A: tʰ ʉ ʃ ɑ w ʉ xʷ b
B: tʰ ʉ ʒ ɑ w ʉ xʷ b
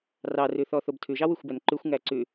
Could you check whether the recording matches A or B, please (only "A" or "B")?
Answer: B